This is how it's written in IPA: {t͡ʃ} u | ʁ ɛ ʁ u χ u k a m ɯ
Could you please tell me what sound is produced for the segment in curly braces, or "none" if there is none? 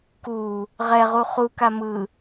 k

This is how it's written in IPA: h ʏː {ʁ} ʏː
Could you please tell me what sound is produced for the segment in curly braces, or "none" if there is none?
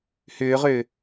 ʁ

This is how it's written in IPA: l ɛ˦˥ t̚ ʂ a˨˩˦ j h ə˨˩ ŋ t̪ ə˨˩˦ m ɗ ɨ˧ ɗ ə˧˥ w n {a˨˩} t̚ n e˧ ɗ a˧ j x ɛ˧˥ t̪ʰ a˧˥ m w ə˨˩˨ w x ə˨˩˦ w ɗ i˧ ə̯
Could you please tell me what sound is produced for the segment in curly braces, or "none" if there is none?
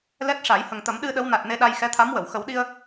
a˨˩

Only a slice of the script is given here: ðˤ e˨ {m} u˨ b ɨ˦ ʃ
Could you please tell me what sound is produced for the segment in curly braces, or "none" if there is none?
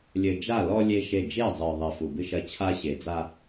f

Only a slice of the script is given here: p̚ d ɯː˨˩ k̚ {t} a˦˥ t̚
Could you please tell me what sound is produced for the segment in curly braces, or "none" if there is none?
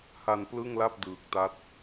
t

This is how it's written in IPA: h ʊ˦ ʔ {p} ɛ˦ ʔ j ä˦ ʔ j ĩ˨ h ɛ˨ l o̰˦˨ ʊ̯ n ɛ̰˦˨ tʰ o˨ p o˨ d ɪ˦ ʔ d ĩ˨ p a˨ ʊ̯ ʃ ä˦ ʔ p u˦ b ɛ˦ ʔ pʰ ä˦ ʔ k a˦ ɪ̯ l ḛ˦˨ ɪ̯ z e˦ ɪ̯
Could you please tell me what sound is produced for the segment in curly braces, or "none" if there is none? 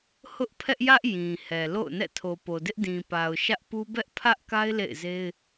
pʰ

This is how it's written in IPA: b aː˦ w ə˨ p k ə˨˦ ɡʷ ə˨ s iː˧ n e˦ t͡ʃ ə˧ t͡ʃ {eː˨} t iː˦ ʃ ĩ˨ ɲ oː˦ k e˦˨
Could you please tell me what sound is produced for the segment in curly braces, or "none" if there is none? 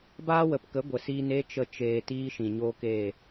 eː˨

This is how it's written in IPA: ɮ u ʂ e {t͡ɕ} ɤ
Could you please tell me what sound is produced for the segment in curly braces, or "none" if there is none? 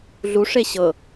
ɕ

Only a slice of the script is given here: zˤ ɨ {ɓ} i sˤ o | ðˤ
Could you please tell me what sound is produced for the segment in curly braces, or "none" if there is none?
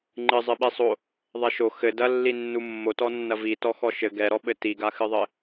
ɓ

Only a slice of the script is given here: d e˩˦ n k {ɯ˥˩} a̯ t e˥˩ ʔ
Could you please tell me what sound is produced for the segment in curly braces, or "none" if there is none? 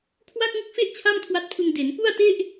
u˥˩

